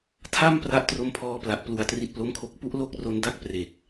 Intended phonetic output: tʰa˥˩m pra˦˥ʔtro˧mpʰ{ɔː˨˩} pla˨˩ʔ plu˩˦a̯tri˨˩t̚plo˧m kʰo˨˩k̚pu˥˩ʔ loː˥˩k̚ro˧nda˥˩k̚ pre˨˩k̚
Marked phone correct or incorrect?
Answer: incorrect